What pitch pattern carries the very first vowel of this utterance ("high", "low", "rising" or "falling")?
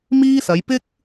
high